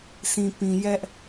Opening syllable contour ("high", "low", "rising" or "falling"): low